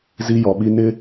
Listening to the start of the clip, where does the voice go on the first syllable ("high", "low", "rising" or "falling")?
high